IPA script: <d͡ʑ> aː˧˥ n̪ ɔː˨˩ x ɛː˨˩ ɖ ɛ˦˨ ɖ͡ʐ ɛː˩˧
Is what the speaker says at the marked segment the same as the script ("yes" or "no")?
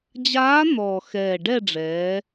yes